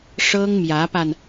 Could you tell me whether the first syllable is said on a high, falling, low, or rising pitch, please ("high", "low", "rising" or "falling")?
high